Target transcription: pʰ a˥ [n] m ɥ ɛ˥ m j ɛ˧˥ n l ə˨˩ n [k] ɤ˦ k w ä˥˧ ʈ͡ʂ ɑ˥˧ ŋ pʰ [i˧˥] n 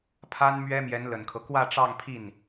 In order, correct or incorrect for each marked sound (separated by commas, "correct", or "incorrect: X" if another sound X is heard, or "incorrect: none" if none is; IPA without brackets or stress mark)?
correct, incorrect: kʰ, incorrect: i˥˩